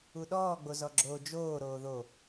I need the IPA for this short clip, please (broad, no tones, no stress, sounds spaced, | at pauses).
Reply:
u ɗ ɔː ɡ͡b o z ɔ ɡ͡ǁ oː d͡ʒ oː ɾ oː ð o